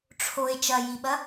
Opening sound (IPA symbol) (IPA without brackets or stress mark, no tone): ʈ͡ʂʰ